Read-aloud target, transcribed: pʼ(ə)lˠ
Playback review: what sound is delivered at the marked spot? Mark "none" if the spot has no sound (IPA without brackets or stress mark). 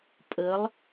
ə